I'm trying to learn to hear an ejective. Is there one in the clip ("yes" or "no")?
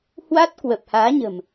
no